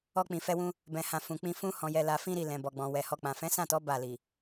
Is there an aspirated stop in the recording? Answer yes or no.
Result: no